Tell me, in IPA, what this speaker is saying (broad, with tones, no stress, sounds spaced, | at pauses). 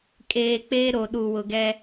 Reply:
kʼ eː˨ k͡p eː˦ ɾ o˨ ɗ u˨ w ʊ˨ ɡ ɛ˦